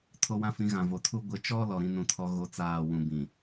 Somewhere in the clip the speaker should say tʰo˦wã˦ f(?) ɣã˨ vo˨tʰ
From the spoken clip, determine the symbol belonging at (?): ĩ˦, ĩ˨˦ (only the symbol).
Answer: ĩ˨˦